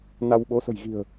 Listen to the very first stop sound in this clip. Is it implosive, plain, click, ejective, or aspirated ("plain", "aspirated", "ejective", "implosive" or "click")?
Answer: implosive